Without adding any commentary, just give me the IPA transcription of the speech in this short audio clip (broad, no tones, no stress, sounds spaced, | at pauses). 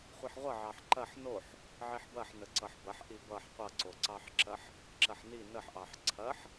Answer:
χʷ i ħ ʁʷ ʌ ʕ ɑ ħ ǃ ɐ ħ n o ħ | ʕ i ħ b ɐ ħ n ə ǀ ʌ ħ b ɐ ħ ʔ i b ʌ ħ qʷ ʌ ǀ o ǀ ɑ ħ ǁ ɐ ħ | ǁ ɐ ħ n i n ə ħ ʔ ɑ ħ ǀʰ ɐ ħ